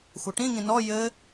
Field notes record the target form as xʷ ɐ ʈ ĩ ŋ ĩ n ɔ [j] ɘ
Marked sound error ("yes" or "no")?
no